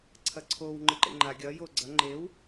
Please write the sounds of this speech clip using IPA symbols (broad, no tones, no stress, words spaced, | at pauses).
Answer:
ǀʰɐǀʰow ŋ͡ǃɨǃḛŋ͡ǃa ɡʲɐ joɡ͡ǀɐ ŋ͡ǃew